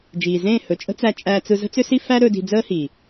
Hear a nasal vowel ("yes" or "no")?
yes